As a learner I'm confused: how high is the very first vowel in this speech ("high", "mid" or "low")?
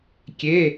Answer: mid